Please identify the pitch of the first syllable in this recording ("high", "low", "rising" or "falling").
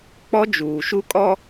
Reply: high